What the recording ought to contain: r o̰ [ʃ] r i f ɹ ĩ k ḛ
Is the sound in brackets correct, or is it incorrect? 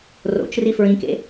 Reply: incorrect